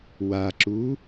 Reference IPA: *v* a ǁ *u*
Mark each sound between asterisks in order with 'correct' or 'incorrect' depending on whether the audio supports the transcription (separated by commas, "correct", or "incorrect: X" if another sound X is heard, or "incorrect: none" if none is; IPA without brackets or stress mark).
incorrect: w, correct